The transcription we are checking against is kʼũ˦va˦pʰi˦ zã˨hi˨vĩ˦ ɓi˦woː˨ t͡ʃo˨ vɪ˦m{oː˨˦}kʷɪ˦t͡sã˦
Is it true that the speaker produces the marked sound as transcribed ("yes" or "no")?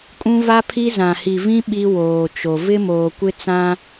no